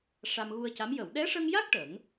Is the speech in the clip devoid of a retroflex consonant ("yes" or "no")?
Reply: no